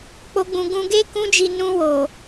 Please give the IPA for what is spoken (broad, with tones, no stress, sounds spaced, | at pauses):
k͡p o˦ ɡ͡b ũ˧ ɡ ũ˧ ɡ e˦ k ũ˦ d͡ʒ i˧ n ũ˧ w o˨